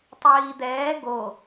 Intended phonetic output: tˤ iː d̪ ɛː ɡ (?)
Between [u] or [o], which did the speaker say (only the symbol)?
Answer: o